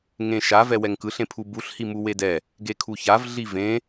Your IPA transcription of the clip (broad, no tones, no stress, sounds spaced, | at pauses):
ŋ ẽ ʃ a v ɛ w ɛ ŋ k ɯ ɬ ẽ pʰ u b u ɬ h i m u w e d ɛ | ɡ e kʰ u ç a v ɮ i v ẽ